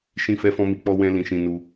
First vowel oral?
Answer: no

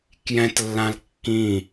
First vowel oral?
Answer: no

